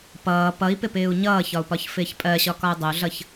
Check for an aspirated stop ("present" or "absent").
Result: absent